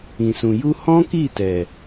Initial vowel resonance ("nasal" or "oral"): nasal